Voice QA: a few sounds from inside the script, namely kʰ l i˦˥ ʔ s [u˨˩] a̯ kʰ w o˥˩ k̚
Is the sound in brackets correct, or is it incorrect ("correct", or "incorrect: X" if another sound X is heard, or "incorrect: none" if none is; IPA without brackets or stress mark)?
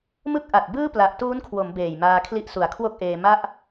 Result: correct